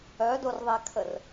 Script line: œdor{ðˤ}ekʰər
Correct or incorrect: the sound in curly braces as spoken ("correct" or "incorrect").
correct